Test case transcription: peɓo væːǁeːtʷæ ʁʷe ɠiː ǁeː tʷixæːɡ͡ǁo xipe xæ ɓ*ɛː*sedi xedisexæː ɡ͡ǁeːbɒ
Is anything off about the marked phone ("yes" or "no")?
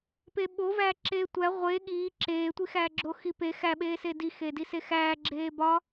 yes